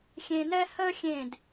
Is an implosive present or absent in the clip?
absent